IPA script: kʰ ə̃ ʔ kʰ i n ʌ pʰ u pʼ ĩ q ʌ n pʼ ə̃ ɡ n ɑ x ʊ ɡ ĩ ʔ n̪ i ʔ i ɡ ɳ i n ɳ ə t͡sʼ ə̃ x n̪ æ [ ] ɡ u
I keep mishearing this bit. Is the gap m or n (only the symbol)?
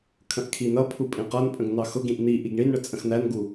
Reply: n